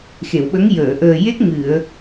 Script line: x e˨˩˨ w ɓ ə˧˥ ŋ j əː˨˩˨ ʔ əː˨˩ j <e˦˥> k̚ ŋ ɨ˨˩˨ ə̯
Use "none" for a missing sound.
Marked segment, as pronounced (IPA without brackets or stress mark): e˦˥